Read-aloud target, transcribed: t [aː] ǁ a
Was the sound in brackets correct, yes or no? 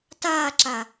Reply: yes